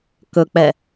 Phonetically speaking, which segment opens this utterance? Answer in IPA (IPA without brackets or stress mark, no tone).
k